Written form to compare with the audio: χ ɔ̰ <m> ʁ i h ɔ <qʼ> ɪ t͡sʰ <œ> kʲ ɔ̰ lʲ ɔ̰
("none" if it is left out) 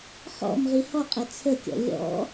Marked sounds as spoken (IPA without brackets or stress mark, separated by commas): m, qʼ, ə